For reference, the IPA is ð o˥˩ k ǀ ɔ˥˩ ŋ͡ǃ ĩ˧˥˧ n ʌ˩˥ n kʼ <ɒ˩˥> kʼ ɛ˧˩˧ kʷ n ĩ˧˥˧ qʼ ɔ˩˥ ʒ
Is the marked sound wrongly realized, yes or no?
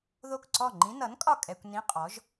yes